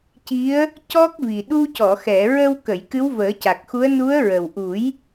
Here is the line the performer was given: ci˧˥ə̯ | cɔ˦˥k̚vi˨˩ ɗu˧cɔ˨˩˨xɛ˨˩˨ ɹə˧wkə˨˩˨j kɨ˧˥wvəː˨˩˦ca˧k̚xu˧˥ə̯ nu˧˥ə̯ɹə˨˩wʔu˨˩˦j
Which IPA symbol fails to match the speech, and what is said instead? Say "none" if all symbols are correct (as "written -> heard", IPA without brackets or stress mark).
a˧ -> a˨˩